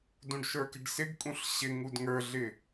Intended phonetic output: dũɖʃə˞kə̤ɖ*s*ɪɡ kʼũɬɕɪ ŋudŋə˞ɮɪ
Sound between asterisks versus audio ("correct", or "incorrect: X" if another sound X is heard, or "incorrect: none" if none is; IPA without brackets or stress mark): correct